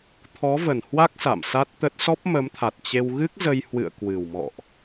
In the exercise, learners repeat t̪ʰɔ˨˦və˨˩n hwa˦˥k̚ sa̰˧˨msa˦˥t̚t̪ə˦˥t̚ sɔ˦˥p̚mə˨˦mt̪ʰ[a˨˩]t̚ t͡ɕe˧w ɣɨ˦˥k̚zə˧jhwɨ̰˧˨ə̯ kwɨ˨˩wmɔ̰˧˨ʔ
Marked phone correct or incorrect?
correct